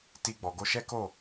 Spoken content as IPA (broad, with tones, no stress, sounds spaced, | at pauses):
t i˧ ɡ͡b ɔ˨ ɡ o˧ ʃ ɛ˦ k o˦˨